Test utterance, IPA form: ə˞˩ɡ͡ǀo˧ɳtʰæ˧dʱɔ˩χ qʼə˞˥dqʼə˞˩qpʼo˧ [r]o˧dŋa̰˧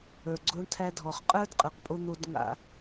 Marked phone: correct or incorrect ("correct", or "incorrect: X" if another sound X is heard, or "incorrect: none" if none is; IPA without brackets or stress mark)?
incorrect: n̪